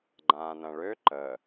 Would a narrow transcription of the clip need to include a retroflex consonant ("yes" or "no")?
yes